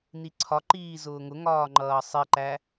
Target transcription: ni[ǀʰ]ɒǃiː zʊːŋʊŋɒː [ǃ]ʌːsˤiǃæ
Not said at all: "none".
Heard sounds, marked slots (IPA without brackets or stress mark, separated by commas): ǀʰ, ŋ͡ǃ